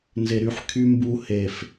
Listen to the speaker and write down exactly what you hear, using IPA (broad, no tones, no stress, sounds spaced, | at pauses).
n z e ɾ y ħ kʰ y m b u h e f